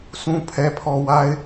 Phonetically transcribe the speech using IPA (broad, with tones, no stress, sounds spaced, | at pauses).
sʰ ũ˨ pʰ ɛ˨ pʰ ɔ˨ w a˨ ɪ̯